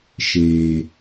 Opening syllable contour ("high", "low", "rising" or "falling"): low